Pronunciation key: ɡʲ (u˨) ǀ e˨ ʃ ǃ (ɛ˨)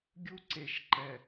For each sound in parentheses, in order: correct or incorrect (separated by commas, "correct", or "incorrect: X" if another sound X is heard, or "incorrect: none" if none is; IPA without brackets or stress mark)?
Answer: incorrect: u˦, correct